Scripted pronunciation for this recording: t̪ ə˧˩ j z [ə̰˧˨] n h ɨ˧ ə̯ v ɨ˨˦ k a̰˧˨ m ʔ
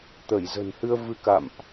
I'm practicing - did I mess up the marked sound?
yes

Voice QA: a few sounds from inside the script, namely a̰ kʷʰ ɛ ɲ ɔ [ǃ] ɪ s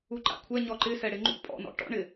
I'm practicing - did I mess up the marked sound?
no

